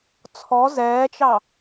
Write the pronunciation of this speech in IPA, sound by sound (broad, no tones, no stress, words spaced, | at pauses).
t͡sʰɔ zɛːt͡ʃɑ